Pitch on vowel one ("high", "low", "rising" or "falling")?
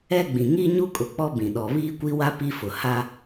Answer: high